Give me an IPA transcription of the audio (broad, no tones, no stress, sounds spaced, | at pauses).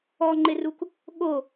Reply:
ɔ ŋ͡ǃ ɪ r u k | ɠ o